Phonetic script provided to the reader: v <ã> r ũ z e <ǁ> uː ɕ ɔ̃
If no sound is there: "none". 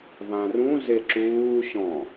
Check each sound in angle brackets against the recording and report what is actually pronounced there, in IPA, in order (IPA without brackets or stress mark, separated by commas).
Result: ã, ǁ